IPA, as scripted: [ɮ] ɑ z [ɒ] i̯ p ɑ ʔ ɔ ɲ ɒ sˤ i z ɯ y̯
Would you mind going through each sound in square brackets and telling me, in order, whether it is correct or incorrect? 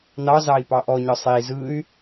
incorrect, incorrect

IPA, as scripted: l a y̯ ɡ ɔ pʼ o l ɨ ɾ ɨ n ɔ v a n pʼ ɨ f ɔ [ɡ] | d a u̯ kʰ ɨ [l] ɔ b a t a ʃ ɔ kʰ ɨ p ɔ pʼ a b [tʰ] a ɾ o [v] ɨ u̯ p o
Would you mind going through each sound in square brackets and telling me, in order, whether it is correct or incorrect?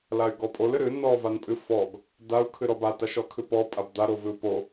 correct, incorrect, incorrect, correct

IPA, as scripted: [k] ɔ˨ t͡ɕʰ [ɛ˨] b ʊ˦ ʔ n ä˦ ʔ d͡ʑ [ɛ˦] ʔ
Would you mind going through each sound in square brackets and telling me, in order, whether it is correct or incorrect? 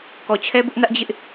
correct, incorrect, incorrect

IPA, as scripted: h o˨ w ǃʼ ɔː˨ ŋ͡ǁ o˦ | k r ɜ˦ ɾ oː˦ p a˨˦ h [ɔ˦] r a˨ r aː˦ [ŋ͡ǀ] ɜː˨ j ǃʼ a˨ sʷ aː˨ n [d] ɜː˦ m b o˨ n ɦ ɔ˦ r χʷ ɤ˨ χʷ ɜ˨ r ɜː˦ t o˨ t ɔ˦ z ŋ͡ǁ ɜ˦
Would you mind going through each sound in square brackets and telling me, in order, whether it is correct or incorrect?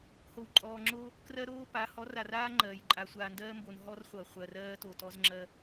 incorrect, incorrect, correct

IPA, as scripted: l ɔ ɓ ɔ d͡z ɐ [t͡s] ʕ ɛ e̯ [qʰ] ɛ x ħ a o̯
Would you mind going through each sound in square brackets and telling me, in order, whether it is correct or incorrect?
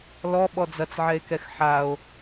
correct, incorrect

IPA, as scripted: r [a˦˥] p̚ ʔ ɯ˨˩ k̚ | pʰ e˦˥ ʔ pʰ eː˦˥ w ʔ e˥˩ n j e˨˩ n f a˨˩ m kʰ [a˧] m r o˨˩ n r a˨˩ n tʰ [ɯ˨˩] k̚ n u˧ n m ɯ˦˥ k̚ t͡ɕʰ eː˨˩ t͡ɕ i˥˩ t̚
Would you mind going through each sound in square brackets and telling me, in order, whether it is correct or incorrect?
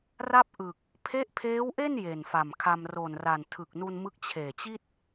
incorrect, correct, correct

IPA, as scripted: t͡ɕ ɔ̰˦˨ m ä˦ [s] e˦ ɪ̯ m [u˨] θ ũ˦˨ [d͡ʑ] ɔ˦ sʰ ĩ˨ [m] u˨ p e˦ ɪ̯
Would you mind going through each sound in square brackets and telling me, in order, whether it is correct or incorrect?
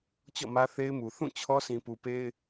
incorrect, correct, incorrect, incorrect

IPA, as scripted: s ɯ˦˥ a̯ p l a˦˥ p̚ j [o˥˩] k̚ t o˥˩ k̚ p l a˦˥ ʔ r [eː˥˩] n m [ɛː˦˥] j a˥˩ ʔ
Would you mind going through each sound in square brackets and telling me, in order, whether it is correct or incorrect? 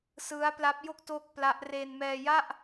correct, incorrect, incorrect

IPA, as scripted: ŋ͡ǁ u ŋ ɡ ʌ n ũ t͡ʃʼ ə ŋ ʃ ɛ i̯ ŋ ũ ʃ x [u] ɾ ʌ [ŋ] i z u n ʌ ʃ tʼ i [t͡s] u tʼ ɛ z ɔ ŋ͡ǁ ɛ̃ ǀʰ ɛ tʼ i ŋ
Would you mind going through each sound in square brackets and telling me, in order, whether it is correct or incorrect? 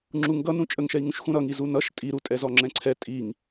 incorrect, correct, incorrect

